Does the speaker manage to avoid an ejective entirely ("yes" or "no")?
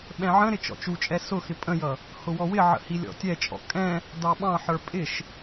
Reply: no